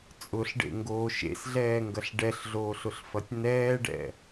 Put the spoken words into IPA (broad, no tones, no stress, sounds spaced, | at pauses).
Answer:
t͡sʼ ʊ ɬ ɖ ḛ ŋ ɡ oː ʃ ḛ s ɮ ɛː ŋ ɡ ɐ ɬ ɖ ɛ ɬ ɮ oː ɬ ʊ ɬ f ɐ tʲ n ɛː ɖ ɛ̰